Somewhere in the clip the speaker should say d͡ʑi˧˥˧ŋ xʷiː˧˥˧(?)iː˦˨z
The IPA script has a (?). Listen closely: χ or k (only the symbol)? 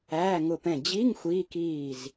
k